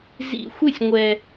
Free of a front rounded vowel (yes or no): yes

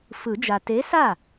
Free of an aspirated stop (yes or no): yes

